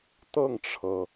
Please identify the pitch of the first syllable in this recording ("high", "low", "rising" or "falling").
falling